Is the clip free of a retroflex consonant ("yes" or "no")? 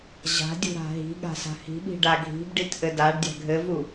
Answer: no